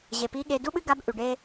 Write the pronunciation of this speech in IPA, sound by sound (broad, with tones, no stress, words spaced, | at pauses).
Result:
ʑe˩pi˧˥ɠe˧ du˥ɓɨ˥ɡa˧˥b ʔʉ˩ɖe˥